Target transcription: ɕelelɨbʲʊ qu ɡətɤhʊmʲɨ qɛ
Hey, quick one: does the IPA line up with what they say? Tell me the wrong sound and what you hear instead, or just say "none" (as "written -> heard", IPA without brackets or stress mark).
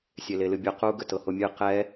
ɕ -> sʲ